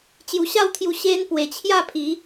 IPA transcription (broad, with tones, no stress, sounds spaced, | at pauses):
t͡ɕ j u˧ ɕ a˥˧ w t̪ʰ j u˧ ɕ e˧ n p w e˨˩ t͡ɕʰ j a˥˧ pʰ i˨˦